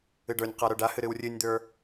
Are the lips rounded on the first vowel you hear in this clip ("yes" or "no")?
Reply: no